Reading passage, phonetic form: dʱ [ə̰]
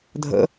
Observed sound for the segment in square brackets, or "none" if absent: ə̰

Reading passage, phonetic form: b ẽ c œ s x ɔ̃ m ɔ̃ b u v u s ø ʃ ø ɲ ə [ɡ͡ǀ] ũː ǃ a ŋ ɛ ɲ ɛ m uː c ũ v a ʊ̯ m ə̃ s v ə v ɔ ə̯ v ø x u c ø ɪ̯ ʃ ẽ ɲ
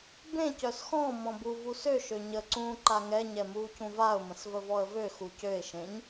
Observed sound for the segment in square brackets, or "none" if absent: ǀ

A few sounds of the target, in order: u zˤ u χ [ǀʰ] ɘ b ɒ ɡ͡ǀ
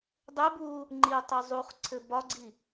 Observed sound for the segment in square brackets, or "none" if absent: ǀʰ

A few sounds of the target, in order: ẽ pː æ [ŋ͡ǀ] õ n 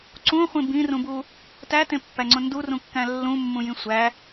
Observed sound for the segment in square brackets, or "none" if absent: ŋ͡ǀ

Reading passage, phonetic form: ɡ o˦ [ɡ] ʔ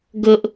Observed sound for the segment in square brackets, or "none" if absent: none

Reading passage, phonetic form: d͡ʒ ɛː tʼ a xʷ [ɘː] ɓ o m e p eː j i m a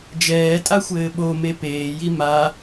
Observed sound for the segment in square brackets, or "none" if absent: ɘː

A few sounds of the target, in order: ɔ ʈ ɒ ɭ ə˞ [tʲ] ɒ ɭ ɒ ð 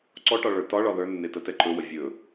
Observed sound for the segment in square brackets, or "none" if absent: t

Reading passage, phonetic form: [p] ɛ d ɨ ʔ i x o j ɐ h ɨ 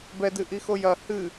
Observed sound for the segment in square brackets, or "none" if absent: b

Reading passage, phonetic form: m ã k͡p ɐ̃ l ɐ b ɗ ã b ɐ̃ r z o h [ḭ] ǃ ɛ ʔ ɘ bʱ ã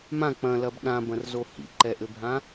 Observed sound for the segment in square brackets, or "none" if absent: ḭ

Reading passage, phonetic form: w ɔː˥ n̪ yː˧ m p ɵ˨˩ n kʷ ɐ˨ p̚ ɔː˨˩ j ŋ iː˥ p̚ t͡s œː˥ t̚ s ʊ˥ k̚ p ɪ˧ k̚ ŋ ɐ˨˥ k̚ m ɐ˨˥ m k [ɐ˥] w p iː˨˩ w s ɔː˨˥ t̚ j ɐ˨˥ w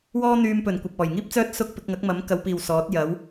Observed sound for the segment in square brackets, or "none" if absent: ɐ˨˧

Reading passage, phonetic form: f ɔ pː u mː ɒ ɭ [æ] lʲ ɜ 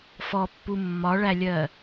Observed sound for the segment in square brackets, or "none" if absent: æ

